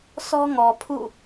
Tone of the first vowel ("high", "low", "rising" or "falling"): high